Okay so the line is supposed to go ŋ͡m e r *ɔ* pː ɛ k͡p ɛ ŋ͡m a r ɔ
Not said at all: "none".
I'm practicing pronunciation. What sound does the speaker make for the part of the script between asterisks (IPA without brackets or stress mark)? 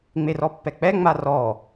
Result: ɔ